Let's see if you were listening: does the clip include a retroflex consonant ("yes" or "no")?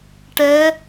yes